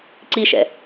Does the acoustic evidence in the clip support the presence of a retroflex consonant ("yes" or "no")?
no